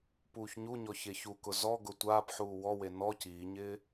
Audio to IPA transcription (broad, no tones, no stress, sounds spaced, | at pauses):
p uː ç ɲ u ɲ ɔ ç e ç u k ʊ z ɔ ɡ ʊ tʷ aː p ħ uː w ɔ w e n ɔ c iː ɲ ɪː